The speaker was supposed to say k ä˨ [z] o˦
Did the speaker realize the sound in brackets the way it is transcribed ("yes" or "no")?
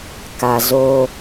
yes